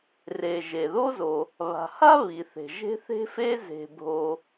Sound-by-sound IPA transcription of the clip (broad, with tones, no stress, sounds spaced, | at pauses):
r e˩ ʒ e˩ ð o˥ z o˩ | β a̤˩ h a˥ β i˩ θ e̤˩ ʒ e̤˥ θ e̤˥ f e˥ z e̤˩ bʱ o˩